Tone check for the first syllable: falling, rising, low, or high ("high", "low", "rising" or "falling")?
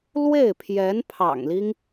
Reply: falling